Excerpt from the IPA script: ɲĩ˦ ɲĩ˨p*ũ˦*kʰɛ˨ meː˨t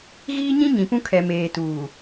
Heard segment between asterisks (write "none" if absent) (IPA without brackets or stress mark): ũ˦